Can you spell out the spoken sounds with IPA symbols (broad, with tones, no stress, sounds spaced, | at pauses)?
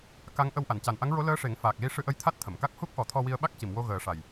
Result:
k a˧˥ ŋ ʔ ə˧ w ʔ a˨˩˨ n c a˨˩ n ʔ a˧˥ ŋ ɹ o˧˥ l əː˧˥ ʂ e˨˩˦ ŋ f aː˨˩ k̚ l i˧ ʂ ɨ˧ ʔ ə˧ j t̪ʰ a˦˥ t̚ t̪ʰ ə˨˩˨ m k a˦˥ k̚ h u˦˥ k̚ ʔ ɔ˨˩˦ t̪ʰ ɔ˧ w i˧ ə̯ ɓ a˦˥ k̚ c i˨˩˨ m w o˧ ɣ əː˨˩˦ ʂ a˨˩ j